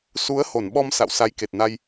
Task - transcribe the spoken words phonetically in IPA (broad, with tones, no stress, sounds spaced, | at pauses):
s u˨˦ ə̯ h o˧˩ n ɓ ɔ˧ m s a̰˧˨ w s a˨˦ j k e˨˩ t̚ n a˧ j